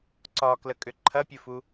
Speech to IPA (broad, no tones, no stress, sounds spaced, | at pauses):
ǀ ɒ k l ə kʼ ʏ ǃʰ ɐ pʲ ɨ f u